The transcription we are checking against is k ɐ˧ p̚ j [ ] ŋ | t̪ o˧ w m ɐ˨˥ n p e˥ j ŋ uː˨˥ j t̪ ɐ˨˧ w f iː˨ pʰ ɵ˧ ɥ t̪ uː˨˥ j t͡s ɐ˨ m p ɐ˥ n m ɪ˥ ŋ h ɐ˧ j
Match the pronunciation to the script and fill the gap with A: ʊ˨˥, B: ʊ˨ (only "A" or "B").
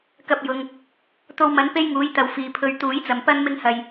B